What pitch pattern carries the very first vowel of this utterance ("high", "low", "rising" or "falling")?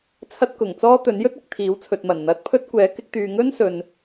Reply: high